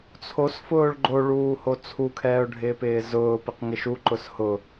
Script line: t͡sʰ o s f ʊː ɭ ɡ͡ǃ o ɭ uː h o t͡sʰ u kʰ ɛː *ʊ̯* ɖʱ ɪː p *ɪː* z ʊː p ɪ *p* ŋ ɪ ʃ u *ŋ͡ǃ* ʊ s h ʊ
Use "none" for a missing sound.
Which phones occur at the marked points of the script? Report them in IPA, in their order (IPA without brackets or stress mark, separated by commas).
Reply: ʊ̯, ɪː, q, ǃ